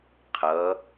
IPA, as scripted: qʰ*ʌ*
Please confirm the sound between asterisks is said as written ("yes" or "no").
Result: yes